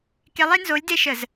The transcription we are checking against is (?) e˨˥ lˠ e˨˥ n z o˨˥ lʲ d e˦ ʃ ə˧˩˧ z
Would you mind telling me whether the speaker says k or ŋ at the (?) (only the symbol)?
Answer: k